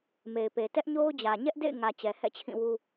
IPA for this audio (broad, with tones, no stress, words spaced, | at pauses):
me˨ɪ̯pe˨ tɛ˦ʔɲo˦ʊ̯d͡ʑä˨ ɲɛ˦ʔdḛ˦˨ɪ̯ŋä˨ t͡ɕɛ˨hɛ̰˦˨t͡ɕʰĩ˦˨wu˦